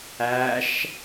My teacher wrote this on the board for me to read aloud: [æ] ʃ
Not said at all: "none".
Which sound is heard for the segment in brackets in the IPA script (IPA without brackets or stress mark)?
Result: æ